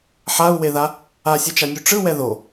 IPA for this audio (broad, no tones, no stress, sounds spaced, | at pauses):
ħ a u̯ w e ð a | a sʲ ɛ t͡ʃ a nʲ u ʈ͡ʂ ɯ w ɛ ð o